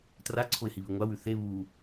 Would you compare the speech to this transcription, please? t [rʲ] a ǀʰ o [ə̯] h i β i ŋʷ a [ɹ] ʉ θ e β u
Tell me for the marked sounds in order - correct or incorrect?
incorrect, incorrect, incorrect

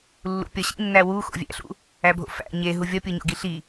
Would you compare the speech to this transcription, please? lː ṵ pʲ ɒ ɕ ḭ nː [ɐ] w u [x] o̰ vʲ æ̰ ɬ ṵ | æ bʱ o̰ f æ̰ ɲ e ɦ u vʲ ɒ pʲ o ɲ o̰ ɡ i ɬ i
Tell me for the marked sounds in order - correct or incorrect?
incorrect, correct

